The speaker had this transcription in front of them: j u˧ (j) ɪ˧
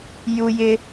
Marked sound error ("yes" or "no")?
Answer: no